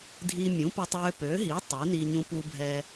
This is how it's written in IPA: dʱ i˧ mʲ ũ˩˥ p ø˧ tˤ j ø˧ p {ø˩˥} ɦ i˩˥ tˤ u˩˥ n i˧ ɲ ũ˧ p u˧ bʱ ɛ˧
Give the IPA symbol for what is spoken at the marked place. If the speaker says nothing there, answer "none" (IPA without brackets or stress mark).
ø˩˥